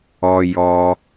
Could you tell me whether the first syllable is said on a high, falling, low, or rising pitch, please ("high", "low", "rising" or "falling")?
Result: high